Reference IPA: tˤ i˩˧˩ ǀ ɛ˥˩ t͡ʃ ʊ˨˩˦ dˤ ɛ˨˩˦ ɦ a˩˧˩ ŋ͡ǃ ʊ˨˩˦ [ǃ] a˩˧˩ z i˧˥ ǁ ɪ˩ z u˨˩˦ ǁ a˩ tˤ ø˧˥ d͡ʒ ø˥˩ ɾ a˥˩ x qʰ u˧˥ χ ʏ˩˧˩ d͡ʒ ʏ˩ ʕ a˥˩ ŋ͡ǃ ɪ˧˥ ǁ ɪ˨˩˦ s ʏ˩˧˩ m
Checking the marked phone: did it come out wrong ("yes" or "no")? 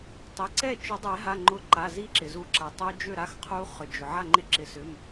no